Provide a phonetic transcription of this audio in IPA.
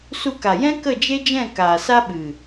s u˧ k a˨ j ɛ̃˦ k ə˦˨ d͡ʒ e˦ d͡ʒ ɛ̃˦˨ k aː˨ s a˦ ɓ ɨ˨

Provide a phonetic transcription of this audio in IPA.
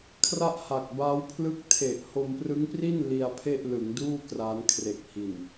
kʰ r a˥˩ ʔ h a˨˩ k̚ b aː˦˥ w pʰ l ɯ˥˩ k̚ tʰ e˨˩ ʔ h o˧ m p r ɯ˦˥ ŋ p r i˥˩ n l i˧ a̯ pʰ e˥˩ ʔ l ɯ˩˦ ŋ d uː˥˩ k r aː˦˥ n kʰ r e˨˩ k̚ h i˨˩ n

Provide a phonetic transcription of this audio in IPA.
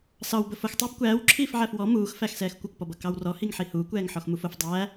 s ɑ w b ə f ʊ x tˤ æ b kʷ æː w ǁʰ iː f ʕ æ f w ɔ m uː x f æ x s ɛː x kʷ ə kʷ p ɔ b ʌ k ɑ w r ɔ h i ŋ ħ i h uː kʷ ɛː ŋ ħ ɔ x m u f ʊ f dˤ æː

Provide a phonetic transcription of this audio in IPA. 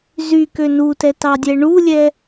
z y k ø n u t ɛ t ɑ dʲ ɛ ɳ u lʲ ɛ

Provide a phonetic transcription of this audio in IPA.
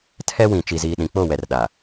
tʰ ɛ˦ w ĩ˨ t͡ʃ i˨ z iː˨ ɗ ĩ˨ k͡p o˦˨ w ɛ˨ r ɗ a˨

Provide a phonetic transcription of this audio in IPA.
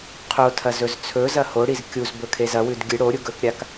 qʰ o tʰ ɐ z ɵ z t͡sʰ ɵ z ɐ h o ɽ i z kʲ u z b ɵ kʰ e z ɐ w ʉ d ɡʲ ɨ ɽ o ɾʲ u ɡ ɵ k ɾʲ a k

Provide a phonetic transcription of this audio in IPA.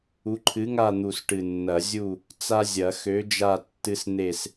u˨˥ ǃʰ ɨ˨˥ ŋ a˦˨ n̪ u˨˩ s ʈ ɨ˨˩ nː ɐ˨˩˦ zʲ u˦˨ | t͡s a˦ zʲ ɐ˨˩˦ x ø˨˥ d͡ʒ a˦˨ tː ɨ˦ s n̪ e˦˨ s

